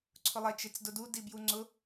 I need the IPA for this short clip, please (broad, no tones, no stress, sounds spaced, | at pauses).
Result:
ǀʰ ʊ lˠ ɛ t͡ʃ e t͡s d ʊ d u d i b j u ŋ͡ǀ ʊ